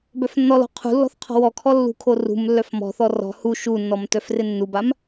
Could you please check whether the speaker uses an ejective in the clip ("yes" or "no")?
no